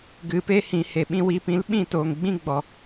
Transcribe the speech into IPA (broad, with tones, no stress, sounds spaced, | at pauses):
ɡ ɨ˨ p e˦ h ĩ˨ h e˨ ɓ ĩ˧ w i˨˦ p ĩ˨˦ l ɓ ĩ˦˨ t oː˨ ŋ ɡ͡b ĩ˦ ɡ͡b ɔ˨